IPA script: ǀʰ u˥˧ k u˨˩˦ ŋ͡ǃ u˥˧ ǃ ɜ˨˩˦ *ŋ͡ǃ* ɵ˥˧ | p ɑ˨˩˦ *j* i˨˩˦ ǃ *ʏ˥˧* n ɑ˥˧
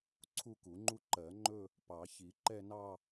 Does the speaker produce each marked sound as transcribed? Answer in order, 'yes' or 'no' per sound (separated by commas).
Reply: yes, no, no